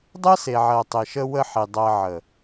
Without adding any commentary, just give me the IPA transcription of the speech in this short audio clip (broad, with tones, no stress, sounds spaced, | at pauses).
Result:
dˤ ɜ˦ s e˨ ʕ ɜ˨ tˤ e˨ ʃ ə˦ w ə˦ ħ i˨ dˤ ɜ˨ ʕ ə˨